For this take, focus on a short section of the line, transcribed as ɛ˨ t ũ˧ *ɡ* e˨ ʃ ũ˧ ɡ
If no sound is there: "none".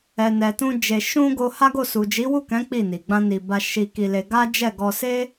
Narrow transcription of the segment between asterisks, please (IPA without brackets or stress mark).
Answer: d͡ʒ